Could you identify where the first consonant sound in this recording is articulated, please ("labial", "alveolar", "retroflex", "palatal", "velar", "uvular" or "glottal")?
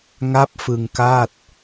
velar